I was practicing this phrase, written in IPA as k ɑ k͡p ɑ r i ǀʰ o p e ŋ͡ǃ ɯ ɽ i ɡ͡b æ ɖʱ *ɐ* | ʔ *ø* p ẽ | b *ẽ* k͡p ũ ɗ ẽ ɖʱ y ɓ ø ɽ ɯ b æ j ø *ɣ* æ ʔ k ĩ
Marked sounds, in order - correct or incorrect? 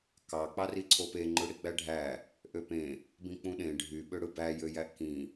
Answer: incorrect: æ, correct, incorrect: ĩ, incorrect: j

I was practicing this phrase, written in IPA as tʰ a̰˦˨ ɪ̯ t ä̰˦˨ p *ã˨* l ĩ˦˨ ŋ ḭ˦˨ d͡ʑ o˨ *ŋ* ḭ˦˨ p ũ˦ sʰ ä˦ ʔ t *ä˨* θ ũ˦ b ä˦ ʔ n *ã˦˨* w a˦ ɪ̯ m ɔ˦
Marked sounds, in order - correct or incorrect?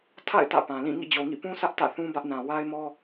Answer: correct, correct, incorrect: ä̰˦˨, incorrect: ã˨

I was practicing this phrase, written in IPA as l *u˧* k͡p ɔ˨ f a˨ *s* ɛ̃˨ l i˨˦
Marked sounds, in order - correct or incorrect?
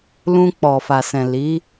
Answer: incorrect: ũ˧, correct

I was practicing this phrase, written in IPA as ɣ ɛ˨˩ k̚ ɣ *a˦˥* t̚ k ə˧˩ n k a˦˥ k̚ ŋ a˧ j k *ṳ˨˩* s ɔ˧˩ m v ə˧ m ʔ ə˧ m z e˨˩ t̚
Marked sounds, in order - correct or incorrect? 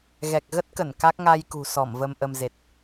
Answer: incorrect: ə˦˥, correct

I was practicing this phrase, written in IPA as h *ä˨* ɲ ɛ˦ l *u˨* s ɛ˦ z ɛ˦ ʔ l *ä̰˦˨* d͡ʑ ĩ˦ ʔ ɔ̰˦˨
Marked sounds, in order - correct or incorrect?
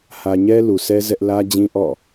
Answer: correct, correct, incorrect: ä˦

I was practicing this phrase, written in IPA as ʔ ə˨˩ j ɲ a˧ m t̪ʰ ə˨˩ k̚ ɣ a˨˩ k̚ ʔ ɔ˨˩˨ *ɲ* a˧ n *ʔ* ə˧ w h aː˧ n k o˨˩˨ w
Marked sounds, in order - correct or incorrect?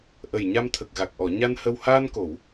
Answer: correct, incorrect: h

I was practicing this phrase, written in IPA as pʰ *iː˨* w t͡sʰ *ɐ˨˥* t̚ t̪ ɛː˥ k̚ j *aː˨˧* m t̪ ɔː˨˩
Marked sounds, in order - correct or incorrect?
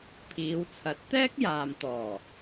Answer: incorrect: iː˨˧, correct, incorrect: aː˨

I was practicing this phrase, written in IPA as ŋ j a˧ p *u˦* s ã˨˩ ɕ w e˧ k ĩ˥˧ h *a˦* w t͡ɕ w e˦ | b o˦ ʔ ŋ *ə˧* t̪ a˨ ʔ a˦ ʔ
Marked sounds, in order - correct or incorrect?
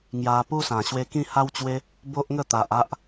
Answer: correct, correct, incorrect: ə˥˧

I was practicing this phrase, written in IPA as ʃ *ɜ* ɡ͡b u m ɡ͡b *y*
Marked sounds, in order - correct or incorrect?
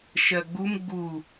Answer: correct, incorrect: u

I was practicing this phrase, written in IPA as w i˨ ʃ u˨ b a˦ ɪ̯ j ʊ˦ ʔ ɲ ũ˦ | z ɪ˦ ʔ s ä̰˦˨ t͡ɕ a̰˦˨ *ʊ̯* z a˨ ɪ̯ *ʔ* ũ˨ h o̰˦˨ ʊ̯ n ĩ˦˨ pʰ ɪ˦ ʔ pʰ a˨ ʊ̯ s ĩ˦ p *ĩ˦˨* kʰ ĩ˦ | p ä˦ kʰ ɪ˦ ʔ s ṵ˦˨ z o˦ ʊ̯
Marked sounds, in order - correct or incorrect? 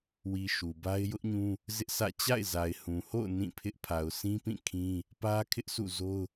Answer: incorrect: ɪ̯, incorrect: h, correct

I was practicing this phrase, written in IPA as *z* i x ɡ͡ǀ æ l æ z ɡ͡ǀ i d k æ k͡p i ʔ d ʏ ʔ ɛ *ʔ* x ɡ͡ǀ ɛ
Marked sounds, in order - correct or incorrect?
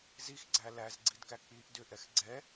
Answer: correct, incorrect: none

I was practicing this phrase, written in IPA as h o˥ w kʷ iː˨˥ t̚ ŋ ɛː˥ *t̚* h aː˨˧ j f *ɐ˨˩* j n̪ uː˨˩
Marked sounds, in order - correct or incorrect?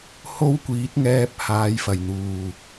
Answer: incorrect: p̚, correct

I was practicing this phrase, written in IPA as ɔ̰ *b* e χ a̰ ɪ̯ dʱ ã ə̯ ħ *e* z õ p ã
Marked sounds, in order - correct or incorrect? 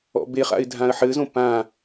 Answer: correct, incorrect: ɘ

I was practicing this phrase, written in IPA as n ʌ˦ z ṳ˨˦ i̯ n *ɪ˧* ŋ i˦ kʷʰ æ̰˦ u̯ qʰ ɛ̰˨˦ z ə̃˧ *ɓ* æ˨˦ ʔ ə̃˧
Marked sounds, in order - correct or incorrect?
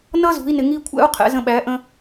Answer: correct, correct

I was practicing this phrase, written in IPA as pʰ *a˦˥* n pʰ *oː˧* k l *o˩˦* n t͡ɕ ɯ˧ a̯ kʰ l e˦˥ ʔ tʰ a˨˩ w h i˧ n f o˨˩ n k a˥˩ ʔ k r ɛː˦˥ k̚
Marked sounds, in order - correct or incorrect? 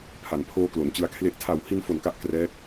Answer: incorrect: a˩˦, correct, correct

